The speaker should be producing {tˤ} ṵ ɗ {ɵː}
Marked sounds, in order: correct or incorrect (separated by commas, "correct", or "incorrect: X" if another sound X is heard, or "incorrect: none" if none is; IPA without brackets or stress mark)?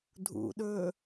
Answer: incorrect: dʱ, correct